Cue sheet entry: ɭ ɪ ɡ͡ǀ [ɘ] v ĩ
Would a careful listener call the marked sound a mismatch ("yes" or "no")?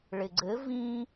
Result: no